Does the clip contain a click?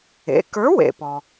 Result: no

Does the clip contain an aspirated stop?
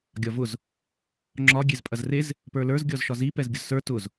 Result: no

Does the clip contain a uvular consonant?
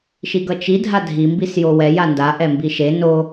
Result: no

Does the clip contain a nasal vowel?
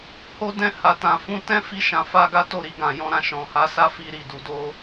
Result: yes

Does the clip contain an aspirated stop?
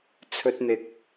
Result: yes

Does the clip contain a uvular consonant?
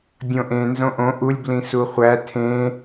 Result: yes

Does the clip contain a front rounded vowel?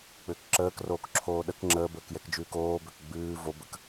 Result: yes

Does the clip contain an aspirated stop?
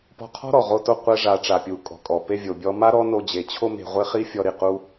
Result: yes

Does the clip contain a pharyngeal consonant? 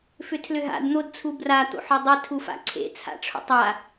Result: yes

